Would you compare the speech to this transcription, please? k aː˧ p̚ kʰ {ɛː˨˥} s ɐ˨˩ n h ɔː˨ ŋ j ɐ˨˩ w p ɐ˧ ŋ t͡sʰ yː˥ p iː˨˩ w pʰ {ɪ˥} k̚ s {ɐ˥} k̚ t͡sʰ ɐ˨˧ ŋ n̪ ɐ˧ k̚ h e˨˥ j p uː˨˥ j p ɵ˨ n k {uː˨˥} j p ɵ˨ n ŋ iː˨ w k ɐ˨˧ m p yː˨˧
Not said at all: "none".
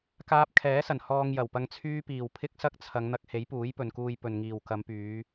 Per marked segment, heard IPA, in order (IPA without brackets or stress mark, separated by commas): ɛː˨˥, ɪ˥, ɐ˥, uː˧